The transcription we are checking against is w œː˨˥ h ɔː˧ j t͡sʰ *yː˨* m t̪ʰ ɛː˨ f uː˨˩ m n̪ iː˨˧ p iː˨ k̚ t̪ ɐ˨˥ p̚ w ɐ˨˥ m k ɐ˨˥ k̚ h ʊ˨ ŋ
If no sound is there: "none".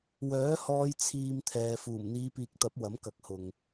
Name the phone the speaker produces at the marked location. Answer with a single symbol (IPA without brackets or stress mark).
iː˨